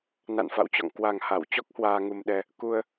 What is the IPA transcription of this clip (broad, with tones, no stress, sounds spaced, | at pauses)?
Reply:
n a̰˧˨ n f a̰˧˨ w t͡ɕ ɔ̰˧˨ ŋ k w a˨˩ ŋ h a˧˩ w t͡ɕ ɔ˦˥ k̚ h w aː˧ ŋ u˧ m ɗ ɛ˧ | k u˧ ə̯